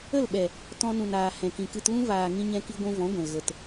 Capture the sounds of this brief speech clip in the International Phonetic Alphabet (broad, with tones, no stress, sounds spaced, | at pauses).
ə˦˨ l ɓ ɛ˨ | t ɔ̃˧ n ũ˨ n aː˨ h ɛ̃˨ k ĩ˨ k ɨ˧ t l ũ˦ v aː˨ ŋ ĩ˧ ɲ ɛ̃˧ k i˧ ɡʷ ũ˧ v ɔ̃˨˦ ɡʷ ɛ̃˨ l ɣ ə˨ t